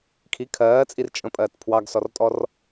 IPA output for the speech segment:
kʰ i kʰ ɜː t͡sʼ i r t͡ʃʼ ə̃ pʼ ɜː t pʰ w ɑ ɡ s ɔ r tʼ ɔ r

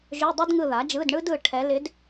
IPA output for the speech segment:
ʒ ø˧˥˧ dˤ o˥ d ŋ ɯ˦˨ ð a˩˥ d͡ʒ ɯ˧˥˧ d ɳ ɯ˥ d ɯ˦˨ ʈʰ ɛ˧˥ l ɪ˧˥ d

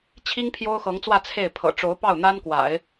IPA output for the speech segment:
t͡ɕʰ i˥ ŋ pʰ j o˥ ʊ̯ x ɤ˧˥ ŋ t͡s w ä˥˧ t͡sʰ e˥˩ ɪ̯ pʰ ɤ̰˨˩ ʈ͡ʂ o˧˥ ʊ̯ p ɑ˥˩ ʊ̯ n̪ a˥ n k w a̰˨˩˦ ɪ̯

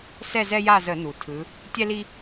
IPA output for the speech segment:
s ɛ˦˨ z ɛ˦ j a˦˨ z ə˧˩˧ n u˩ tʰ ɯ˩˧ | tʲ ɛ˦ l i˦

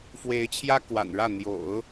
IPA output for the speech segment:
f w e˧˥ ɪ̯ t͡ɕʰ j ä˥ k w a̰˨˩ n ɻ ä˥˩ n̪ j o̰˨˩˦ ʊ̯

